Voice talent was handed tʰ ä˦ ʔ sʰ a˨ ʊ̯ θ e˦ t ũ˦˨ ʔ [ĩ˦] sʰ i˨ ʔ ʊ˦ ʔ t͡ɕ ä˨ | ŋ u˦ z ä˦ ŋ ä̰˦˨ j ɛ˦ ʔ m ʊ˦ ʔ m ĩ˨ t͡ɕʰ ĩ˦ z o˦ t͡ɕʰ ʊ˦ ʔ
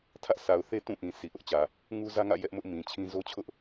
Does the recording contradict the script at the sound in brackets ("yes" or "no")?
yes